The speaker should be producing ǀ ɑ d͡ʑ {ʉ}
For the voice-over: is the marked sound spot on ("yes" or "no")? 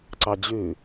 yes